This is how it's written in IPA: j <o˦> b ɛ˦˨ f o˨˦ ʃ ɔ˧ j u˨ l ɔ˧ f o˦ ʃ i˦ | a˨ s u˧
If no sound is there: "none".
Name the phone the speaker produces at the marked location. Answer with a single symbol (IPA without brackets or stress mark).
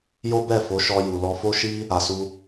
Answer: o˦